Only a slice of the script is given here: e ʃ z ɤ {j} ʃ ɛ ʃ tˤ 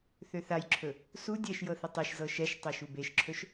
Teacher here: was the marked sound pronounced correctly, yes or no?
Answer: no